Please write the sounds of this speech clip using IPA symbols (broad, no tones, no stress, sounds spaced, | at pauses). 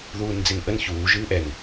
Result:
ð uː n d͡z e n ʔ ə n ç uː ʒ ɨː ʔ ɛ n